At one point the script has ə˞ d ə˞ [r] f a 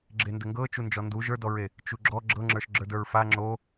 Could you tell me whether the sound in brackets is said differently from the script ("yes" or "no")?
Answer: yes